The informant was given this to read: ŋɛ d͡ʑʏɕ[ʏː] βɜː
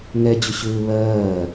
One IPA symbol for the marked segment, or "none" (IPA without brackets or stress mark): ʏː